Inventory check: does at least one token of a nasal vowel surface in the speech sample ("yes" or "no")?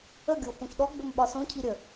yes